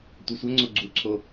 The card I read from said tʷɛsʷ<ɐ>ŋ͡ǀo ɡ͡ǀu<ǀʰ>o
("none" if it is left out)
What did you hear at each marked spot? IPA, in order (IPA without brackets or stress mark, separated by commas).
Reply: ɐ, ǀʰ